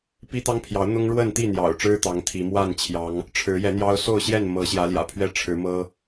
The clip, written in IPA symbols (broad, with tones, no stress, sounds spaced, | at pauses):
p i˦ t̪ ɑ˦ ŋ pʰ j ɑ˨˦ ʊ̯ n̪ ʊ˦ ŋ ɻ w ə˥˨ n t̪ i˥˨ n̪ j ɑ̰˨˩ ʊ̯ ʈ͡ʂ ɻ̩˦ t̪ ɑ˨˦ ŋ t̪ʰ i˨˦ m w a˥˨ n t͡ɕʰ j ɑ˨˦ ŋ | ʈ͡ʂʰ ɻ̩˨˦ j ɛ˨˦ n̪ j ɑ˦ ʊ̯ s o˥˨ ʊ̯ ɕ j ɛ˥˨ n m ɤ˨˦ ɕ j ä˨˦ l j ä̰˨˩ pʰ ɥ ɛ˥˨ ʈ͡ʂʰ ɻ̩˨˦ m ɤ˦